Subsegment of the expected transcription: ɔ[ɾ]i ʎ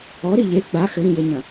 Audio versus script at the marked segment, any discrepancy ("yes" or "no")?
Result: no